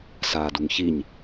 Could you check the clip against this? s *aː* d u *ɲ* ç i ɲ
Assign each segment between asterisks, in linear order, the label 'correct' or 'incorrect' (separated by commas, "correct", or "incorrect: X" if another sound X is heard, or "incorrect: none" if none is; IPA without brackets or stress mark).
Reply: correct, incorrect: ŋ